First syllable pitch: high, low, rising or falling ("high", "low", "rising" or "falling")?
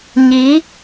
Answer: rising